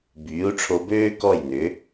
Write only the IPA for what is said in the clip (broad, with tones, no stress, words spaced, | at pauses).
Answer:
byː˩˥u̯ʈ͡ʂʰo˧bøː˥ kɔ˥˩jnʏ˩˥